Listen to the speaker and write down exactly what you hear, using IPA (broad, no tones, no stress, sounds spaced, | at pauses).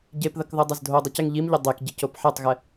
ɟ e p ð ʌ k ð ʌ dˤ ɛ z dʱ o dˤ u c ɛ ŋ ʎ i m ʎ ɛ dˤ e k ɟ e c o p ħ ɛ tˤ ɣ ɛ